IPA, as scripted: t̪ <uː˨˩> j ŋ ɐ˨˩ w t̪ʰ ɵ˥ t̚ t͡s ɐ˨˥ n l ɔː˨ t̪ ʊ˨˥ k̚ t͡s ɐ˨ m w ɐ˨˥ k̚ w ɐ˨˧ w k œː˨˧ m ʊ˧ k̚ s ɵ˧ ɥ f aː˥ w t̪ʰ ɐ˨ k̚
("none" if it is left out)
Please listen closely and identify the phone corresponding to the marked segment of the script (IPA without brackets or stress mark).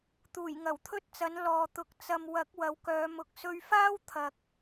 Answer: uː˨˩